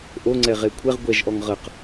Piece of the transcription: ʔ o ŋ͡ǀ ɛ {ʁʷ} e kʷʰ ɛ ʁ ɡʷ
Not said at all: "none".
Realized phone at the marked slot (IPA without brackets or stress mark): ʁ